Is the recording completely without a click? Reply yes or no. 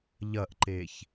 no